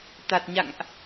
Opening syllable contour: low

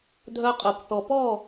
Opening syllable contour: high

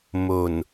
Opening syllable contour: low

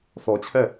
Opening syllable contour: low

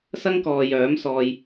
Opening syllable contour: high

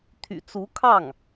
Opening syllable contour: low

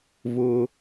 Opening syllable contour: high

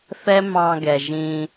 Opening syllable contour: high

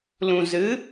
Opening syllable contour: low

